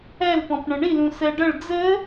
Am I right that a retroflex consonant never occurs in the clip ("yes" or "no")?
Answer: no